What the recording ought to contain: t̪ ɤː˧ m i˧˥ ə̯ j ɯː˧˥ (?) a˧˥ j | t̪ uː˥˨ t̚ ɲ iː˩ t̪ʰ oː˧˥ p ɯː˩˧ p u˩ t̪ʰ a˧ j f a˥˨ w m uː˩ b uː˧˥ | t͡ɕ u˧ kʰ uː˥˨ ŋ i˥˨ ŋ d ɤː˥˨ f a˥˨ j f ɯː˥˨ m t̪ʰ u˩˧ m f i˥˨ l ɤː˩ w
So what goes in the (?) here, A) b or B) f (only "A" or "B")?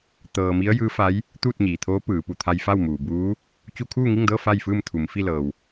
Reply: B